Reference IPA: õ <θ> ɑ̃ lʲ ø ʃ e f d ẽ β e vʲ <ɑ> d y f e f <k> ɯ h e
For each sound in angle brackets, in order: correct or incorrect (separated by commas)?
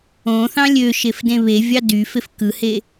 correct, correct, correct